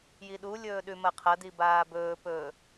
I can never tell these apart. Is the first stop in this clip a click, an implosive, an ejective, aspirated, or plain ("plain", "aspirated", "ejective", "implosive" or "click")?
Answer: implosive